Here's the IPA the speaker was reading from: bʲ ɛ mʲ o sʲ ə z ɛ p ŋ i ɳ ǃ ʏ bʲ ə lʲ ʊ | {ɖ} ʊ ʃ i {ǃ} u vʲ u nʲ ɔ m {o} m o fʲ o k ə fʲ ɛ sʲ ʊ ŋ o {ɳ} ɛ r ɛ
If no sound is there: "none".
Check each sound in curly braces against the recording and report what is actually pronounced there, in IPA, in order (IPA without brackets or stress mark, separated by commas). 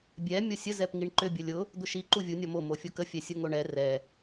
d̪, ǃ, o, ɳ